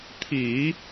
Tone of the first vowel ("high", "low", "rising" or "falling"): low